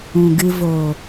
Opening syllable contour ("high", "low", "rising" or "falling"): low